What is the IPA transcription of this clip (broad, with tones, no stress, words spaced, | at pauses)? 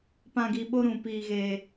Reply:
pã˧ɡi˧ ɓo˦ɾũ˧piː˧ɣeː˧